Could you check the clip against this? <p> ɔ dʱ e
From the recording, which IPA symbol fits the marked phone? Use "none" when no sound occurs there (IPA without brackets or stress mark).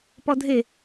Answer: p